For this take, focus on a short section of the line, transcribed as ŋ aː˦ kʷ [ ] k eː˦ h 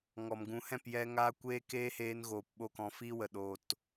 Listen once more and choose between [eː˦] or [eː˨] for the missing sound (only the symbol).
eː˦